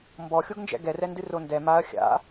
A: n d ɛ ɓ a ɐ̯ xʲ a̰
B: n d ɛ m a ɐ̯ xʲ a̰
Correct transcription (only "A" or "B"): B